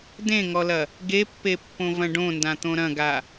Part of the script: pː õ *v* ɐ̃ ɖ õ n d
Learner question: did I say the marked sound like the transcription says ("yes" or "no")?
yes